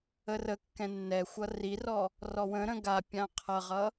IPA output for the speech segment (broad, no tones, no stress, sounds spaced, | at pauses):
ə r ə kː ɛ̃ nː ɛ xʷ ʌ r i r ɔ | r ɔ w ə̃ ɾ ə̃ ɡ a pʲ ã qʰ ʌ ʁ ʌ